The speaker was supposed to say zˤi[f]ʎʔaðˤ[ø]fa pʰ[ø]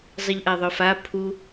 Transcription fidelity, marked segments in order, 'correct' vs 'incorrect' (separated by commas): incorrect, incorrect, incorrect